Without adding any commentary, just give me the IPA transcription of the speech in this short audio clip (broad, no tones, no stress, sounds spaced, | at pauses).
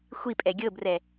xʷ i pʼ ɛ ɡʲ ɤ b r ɛ